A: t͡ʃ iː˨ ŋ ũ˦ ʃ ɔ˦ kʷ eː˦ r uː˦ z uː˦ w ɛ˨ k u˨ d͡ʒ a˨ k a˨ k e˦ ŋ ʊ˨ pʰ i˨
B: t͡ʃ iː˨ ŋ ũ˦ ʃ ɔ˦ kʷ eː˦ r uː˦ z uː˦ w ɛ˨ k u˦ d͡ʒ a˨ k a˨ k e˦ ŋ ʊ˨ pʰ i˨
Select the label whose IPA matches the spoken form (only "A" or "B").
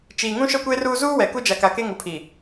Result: B